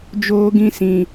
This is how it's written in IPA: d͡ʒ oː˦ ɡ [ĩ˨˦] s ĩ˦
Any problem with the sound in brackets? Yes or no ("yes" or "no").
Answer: yes